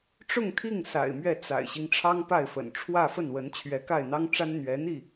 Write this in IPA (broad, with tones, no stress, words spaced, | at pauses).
ʈ͡ʂʊ˥˧ŋt̪ʰi˥˩ŋ sa̰˨˩ɪ̯mɥɛ˥˩ t͡sa̰˨˩ɪ̯ɕi˦ŋ ʈ͡ʂʰɑ˥ŋpa˥˩ɪ̯fə̰˨˩n ʈ͡ʂʰwä˥˧fə˥˩nwə˧˥n t͡ɕʰɥɛ˧˥ka˥˩ɪ̯n̪ɑ˥ŋʈ͡ʂa˥n n̪ɥɛ˧˥n̪i˥˩